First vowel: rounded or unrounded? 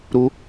rounded